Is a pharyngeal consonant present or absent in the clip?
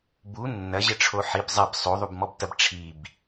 present